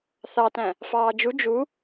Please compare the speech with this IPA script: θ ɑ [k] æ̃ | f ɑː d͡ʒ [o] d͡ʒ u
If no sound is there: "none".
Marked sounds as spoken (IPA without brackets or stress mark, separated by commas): t, u